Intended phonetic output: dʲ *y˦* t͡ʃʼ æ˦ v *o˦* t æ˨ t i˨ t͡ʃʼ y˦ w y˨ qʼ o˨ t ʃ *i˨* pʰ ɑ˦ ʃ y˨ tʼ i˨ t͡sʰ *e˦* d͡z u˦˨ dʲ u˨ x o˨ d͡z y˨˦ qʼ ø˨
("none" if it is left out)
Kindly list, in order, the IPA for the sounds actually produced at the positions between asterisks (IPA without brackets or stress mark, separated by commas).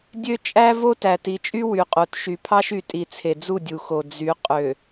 ø˦, o˦, y˨, e˨